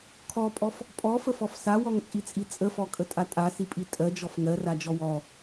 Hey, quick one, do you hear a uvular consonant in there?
no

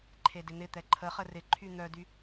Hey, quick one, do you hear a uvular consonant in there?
yes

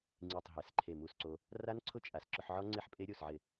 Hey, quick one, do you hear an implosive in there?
no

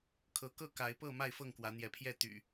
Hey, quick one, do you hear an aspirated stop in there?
yes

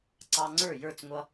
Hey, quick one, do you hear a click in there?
yes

